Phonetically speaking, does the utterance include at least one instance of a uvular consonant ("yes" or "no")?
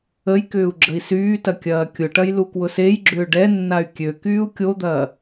no